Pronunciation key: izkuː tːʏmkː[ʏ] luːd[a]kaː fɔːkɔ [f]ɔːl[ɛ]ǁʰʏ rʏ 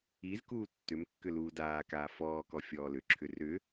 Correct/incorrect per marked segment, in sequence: correct, incorrect: aː, incorrect: fʲ, incorrect: ʏ

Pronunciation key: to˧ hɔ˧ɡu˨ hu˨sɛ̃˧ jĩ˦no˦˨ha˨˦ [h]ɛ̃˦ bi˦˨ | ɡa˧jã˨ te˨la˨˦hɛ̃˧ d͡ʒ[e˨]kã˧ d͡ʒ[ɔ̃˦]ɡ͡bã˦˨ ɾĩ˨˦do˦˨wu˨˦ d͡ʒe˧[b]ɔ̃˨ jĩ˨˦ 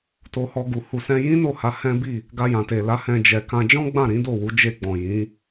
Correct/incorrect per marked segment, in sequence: correct, incorrect: ɛ˨, correct, incorrect: ɡ͡b

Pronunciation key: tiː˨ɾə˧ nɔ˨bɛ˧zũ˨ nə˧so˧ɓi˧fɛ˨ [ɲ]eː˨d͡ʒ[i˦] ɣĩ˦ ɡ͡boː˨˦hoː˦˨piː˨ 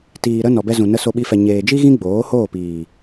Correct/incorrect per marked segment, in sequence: correct, correct

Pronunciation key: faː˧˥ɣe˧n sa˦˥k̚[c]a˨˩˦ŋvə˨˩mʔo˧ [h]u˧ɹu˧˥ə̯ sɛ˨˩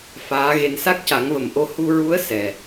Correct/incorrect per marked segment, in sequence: correct, correct

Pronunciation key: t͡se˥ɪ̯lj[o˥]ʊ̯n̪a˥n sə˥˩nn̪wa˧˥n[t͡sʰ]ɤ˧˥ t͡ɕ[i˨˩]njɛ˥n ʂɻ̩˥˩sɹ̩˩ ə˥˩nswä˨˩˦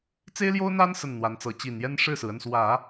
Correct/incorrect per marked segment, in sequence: correct, incorrect: t͡s, correct

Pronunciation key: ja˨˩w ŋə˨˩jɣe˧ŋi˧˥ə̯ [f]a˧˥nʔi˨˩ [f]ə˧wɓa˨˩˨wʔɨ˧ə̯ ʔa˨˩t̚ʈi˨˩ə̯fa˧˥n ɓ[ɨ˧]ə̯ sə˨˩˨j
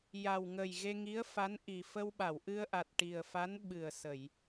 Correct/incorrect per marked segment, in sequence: correct, correct, incorrect: ɨ˨˩

